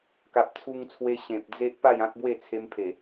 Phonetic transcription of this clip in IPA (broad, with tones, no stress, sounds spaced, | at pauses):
k a˨ p̚ t͡sʰ u˧ ŋ t͡sʰ w e˧ ɕ ẽ˨ p̚ d͡z e˦ ʔ p a˥˧ j ã˦ k̚ b w e˥˧ t͡sʰ e˧ m pʰ e˨˩